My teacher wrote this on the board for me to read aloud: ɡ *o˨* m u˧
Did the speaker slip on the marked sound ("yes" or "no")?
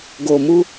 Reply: no